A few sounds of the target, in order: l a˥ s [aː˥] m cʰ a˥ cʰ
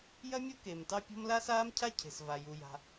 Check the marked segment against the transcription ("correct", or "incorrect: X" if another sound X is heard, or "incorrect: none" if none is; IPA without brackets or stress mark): correct